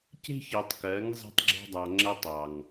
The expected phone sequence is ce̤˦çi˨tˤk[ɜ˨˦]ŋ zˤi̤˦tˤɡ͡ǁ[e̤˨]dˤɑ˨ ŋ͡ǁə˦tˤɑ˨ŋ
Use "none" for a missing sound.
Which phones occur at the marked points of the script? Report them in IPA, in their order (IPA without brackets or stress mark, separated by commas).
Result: ɜ˨˦, e̤˦